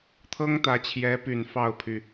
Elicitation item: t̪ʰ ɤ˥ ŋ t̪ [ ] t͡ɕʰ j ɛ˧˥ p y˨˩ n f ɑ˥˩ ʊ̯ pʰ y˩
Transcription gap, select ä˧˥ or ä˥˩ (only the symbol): ä˧˥